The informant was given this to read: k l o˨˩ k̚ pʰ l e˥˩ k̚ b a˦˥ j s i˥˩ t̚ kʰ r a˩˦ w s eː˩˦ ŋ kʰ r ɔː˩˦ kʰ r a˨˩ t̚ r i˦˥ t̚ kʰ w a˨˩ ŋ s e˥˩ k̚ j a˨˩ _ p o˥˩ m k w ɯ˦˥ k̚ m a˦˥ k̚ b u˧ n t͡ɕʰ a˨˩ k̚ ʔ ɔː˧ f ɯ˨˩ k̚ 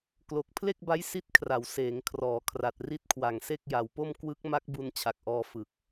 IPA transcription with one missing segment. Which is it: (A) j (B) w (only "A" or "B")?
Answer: B